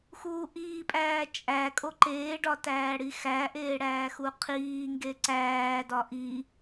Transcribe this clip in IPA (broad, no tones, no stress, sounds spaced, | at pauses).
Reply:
x uː ʔ iː pʼ æː t͡ʃʼ æ kʼ o ǃ eː ɖ ɒ t æː ɽ i x æ ʔ eː ɽ æː x u qʰ iː ŋ ɡ e ǀ æː d ɒ ʔ i